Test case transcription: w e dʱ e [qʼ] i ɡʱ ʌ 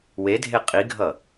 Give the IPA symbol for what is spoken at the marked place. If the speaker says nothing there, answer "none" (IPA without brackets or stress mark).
qʼ